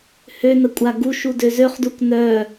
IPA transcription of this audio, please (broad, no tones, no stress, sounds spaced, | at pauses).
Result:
h ø n ə kʷʼ a ɡ u ʃ u d ø z ø χ d u k n œ